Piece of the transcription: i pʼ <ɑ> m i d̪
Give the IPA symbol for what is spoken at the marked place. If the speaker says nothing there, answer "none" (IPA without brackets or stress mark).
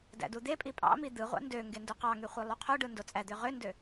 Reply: ɑ̰